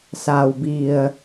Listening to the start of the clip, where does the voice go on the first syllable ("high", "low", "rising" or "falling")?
low